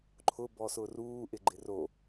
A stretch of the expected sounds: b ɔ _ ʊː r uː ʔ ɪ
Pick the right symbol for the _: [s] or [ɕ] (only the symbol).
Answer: s